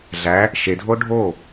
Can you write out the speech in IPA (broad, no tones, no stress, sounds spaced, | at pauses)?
ɮ æ | ʃ e dʱ o ɖʱ o